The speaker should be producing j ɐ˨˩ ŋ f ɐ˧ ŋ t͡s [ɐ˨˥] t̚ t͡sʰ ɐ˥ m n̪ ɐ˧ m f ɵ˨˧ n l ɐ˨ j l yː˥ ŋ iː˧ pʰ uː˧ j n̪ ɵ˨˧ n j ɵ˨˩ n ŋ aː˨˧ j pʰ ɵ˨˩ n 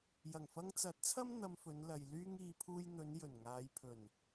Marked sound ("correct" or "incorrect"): correct